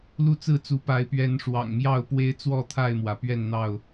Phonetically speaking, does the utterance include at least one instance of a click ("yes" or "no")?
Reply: no